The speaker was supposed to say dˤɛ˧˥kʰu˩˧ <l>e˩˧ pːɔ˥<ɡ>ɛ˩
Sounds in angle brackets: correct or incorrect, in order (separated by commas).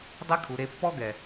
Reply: incorrect, correct